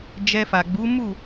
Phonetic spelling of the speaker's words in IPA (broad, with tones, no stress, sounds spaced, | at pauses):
d͡ʒ ɛ˧ f a˨ ɡ͡b u˨˦ m u˦˨